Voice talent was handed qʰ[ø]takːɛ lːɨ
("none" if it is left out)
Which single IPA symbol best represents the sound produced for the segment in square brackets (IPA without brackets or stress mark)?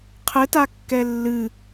ɘ